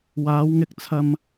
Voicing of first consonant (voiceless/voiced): voiced